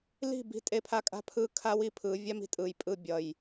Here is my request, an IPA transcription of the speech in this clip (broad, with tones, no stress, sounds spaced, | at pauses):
l i̤˥˨ b i̤˥˨ tʼ e˥ pʰ a˥˨ kʼ a̤˥ pʰ ɯ˥˨ kʰ a˥ w i˥ pʰ ɯ˨˦ vʲ a˥ m i̤˥ tʼ ɯ˧˩ j pʼ ɯ˥˨ bʲ ʌ˧˩ j